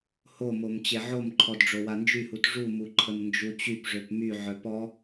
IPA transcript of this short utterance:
h o m o m t͡ɕ e ʕ o m ǃʰ ɔ d ɖ͡ʐ o w a n d͡ʒ y h u t ʐ u m u ǃʰ ə m n d͡ʒ u t͡ɕ y p ʐ ø p m y ʕ œ p ɔ

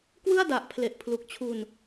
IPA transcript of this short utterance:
k w ɯ˥˩ a̯ d a˨˩ ʔ pʰ l e˨˩ ʔ pʰ l u˨˩ k̚ t͡ɕʰ u˧ n

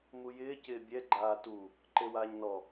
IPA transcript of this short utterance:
m u j ɪː c ɪː bʲ ɛ ɡ͡ǃ aː t u | ǃ e w aː ɲ n ɔ

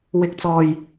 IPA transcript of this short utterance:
w ɪ˨˥ k̚ t͡s ɔː˨ j

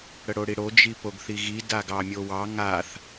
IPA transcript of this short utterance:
ɽ ə ɽ o ɽ i ɽ o d͡ʒ i p o ɡ θ i ɣ i d a ɡ ɑ mʲ o w ɑ ŋ a θ

